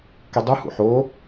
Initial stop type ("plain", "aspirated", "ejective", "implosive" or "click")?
plain